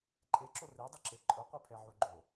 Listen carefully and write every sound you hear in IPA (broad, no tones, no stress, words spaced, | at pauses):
ǃʼeǁo redˤʊǁe ǃʼʊqʷepʰɛʕu ɡ͡ǃo